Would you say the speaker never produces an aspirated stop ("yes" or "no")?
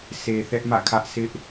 no